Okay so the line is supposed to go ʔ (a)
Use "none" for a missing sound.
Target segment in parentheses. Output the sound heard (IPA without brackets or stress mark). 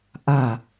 a